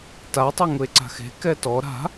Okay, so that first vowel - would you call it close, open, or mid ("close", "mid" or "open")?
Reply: open